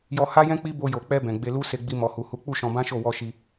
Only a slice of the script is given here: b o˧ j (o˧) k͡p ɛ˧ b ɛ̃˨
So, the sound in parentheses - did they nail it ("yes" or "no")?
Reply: no